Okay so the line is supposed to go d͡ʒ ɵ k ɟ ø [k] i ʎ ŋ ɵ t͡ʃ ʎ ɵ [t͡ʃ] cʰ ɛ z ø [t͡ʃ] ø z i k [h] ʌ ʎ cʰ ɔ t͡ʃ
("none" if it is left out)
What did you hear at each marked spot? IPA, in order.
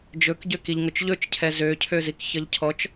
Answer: k, t͡ʃ, cʰ, ç

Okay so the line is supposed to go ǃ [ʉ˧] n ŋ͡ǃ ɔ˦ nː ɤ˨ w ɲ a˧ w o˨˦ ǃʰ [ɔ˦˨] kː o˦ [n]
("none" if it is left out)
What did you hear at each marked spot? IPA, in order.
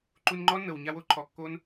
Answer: u˧, ɔ˨, n

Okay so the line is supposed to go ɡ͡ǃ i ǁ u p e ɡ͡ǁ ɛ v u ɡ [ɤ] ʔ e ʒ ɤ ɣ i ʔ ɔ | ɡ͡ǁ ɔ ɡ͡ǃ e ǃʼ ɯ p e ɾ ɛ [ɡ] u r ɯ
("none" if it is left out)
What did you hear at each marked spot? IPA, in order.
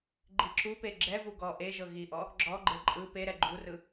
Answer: ɔ, ɡ͡ǃ

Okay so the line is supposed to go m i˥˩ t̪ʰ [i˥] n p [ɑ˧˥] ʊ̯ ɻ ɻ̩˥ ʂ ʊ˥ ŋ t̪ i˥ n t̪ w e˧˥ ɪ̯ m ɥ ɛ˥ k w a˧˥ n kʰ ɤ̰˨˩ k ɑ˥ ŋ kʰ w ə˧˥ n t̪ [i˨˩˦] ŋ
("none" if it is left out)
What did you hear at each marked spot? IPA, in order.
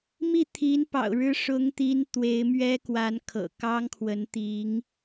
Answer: i˧˥, ɑ̰˨˩, i˧˥

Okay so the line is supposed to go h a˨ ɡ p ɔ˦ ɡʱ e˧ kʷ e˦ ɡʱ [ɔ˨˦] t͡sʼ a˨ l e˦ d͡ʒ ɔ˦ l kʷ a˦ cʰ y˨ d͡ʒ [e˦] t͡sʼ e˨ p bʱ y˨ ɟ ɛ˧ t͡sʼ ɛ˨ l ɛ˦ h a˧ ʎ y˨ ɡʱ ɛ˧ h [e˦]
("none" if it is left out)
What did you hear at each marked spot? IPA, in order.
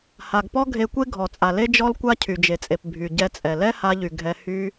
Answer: ɔ˨, e˨, y˦

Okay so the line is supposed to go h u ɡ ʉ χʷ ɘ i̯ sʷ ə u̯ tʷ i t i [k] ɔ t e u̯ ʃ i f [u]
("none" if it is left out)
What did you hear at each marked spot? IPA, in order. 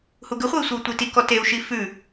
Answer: k, ʉ

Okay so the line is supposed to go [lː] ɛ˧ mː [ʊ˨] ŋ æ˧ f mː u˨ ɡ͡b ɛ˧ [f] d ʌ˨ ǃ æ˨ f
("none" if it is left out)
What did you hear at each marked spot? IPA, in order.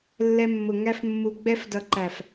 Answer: lː, ʊ˨, f

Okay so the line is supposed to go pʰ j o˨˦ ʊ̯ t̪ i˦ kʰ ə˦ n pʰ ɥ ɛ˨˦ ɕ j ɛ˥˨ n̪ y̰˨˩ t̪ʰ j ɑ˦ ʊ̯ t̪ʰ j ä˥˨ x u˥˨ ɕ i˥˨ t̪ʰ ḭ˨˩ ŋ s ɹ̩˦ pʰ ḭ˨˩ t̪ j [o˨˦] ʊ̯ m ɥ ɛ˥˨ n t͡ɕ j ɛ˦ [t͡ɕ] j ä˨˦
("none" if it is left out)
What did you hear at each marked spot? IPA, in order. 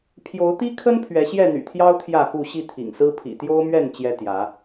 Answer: o˦, t̪

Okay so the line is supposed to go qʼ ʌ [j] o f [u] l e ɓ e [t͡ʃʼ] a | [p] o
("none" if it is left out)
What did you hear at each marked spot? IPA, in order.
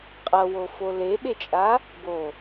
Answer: w, o, t͡ʃʼ, b

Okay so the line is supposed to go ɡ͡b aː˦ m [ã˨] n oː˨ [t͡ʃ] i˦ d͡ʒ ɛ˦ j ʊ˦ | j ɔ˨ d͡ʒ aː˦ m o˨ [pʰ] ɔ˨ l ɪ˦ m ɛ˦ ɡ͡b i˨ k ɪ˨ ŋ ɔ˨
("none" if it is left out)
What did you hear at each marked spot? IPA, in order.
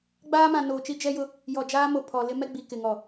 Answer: ã˨, t͡ʃ, pʰ

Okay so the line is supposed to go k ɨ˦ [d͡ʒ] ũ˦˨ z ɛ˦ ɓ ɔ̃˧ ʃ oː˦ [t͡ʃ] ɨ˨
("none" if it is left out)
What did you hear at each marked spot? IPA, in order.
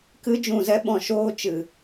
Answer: d͡ʒ, t͡ʃ

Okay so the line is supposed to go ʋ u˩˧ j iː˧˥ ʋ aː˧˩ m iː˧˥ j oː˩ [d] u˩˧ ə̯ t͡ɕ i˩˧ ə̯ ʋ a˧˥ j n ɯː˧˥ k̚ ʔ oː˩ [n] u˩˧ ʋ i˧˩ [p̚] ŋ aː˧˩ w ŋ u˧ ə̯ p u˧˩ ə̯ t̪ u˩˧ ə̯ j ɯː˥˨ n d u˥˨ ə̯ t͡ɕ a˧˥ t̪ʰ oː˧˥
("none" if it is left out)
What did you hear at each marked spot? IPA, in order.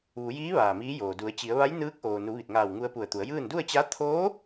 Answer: d, n, t̚

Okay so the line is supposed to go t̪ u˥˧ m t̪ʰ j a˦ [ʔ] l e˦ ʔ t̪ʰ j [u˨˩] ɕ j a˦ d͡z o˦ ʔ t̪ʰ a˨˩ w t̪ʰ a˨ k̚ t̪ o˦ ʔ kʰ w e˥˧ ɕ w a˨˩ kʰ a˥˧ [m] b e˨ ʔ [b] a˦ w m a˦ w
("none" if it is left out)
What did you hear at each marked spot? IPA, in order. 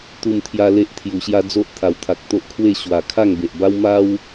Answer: none, u˨˩, ŋ, b

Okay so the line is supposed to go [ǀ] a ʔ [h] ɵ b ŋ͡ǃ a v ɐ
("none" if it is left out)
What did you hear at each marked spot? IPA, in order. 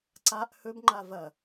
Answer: ǀ, h

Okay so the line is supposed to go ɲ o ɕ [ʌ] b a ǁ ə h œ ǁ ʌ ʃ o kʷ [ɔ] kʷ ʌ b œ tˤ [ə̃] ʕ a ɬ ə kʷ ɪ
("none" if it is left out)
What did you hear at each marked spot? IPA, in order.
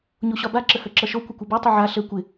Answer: ɒ, ə, ə

